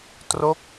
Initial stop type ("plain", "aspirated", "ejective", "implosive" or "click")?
plain